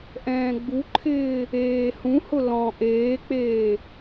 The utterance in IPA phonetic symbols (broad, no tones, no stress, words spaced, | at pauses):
ʔɛ̃ːɡ͡buǃʰɪː | eːhũhʊ lɔ̃ ʔeːk͡peː